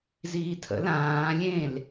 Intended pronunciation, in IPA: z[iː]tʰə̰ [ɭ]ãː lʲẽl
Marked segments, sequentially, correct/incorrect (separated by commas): correct, incorrect